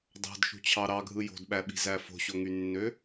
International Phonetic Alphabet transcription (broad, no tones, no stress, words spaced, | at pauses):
dɑ̤dʃṳt͡ɕʰɑ ɾɑɡʱɯ jo̤dɓæɓi̤zæ fo̤ɕoŋynːø